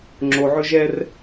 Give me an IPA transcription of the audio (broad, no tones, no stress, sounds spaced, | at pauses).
ŋ͡ǁ o ʕ ɵ ʒ ɛ r